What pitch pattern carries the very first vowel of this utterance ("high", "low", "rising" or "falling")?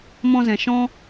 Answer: high